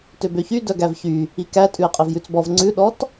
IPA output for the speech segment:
t ø b ø ç y d œ ɡ æ v ç y | i k æ tʼ ʉ ɪ̯ qʼ e v j ʉ t͡s b ɔ v ŋ͡ǀ ʉ ɗ ɔ t

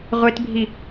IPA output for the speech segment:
ʁʷ e t bʱ i

